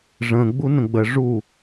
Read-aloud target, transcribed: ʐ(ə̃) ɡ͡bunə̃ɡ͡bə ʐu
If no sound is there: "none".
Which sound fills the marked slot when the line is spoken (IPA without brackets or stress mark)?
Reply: ə̃